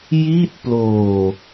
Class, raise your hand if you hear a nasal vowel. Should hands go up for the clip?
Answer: no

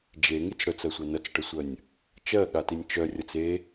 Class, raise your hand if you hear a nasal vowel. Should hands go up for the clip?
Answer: no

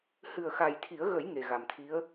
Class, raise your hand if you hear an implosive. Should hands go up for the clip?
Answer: no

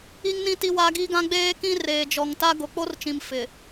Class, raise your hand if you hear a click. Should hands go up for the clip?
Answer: no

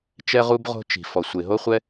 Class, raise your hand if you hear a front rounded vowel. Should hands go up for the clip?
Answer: no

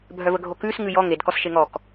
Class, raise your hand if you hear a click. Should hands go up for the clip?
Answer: no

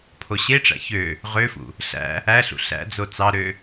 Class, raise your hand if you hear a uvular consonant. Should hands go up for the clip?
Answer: yes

